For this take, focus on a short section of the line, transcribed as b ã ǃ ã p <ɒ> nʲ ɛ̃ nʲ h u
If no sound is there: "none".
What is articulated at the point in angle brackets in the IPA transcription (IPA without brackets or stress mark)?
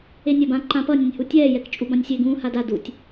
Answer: ʌ